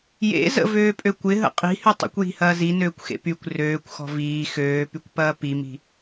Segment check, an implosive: absent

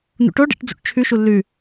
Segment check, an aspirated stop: present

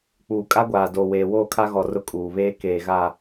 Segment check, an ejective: present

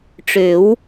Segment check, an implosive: absent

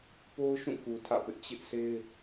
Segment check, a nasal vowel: present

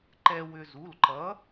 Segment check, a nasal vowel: absent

